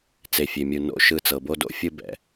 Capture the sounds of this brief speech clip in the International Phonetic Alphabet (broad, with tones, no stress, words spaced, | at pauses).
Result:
t͡se˨fʲe˨mʲu˨ no̰˨ʃɯ˨ t͡sɤ˨bo˦do̰˦ fʲɯ˦bɛ̰˨